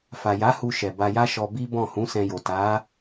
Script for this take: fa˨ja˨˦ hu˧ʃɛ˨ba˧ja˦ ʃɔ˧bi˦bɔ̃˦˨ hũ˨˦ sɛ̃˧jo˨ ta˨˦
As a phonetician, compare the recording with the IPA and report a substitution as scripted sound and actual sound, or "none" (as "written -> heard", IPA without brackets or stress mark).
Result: none